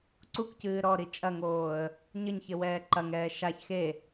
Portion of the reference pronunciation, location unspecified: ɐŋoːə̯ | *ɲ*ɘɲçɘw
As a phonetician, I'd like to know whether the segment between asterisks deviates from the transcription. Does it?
no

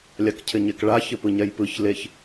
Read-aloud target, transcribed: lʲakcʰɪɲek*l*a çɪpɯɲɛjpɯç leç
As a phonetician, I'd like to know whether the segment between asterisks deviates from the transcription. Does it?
yes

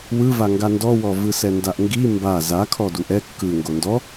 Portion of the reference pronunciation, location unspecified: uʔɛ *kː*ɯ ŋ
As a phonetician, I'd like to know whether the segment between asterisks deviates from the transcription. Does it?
no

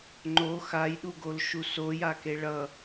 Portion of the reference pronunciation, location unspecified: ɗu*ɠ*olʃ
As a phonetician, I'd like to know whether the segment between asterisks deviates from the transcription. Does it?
yes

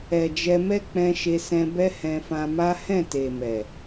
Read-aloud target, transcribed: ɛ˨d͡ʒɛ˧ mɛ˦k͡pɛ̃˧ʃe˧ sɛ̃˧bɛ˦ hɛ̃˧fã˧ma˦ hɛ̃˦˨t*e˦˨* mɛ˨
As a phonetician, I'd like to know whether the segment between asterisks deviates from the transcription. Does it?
yes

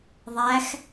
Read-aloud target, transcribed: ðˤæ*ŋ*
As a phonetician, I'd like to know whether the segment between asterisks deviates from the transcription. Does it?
yes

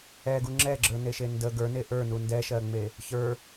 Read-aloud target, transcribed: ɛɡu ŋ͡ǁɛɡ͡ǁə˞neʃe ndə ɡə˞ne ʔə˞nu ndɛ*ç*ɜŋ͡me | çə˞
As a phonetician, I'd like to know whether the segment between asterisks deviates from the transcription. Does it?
yes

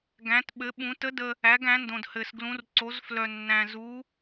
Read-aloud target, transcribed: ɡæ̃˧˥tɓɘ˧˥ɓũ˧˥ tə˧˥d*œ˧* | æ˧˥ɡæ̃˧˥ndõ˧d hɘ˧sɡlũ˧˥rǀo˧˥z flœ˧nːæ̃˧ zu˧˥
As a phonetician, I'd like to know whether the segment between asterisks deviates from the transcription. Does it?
yes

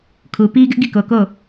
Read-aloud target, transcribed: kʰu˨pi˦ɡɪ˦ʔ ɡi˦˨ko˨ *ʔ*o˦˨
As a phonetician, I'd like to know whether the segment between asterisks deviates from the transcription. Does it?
yes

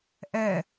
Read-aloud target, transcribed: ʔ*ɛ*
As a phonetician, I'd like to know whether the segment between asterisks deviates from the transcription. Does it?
no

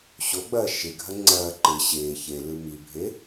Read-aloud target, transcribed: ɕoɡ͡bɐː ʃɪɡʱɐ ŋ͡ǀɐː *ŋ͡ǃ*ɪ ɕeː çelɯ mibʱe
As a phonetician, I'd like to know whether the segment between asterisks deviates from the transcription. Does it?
yes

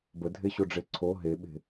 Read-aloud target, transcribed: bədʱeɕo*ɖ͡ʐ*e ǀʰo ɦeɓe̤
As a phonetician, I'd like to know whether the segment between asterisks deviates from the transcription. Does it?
no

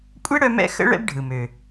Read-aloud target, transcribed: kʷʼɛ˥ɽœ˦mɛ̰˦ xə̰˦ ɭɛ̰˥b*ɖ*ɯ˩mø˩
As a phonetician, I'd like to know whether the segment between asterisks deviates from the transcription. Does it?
yes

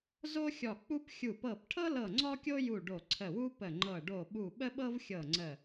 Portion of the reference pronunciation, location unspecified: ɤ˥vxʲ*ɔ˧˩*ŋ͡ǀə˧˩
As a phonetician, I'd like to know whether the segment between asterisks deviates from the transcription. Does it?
yes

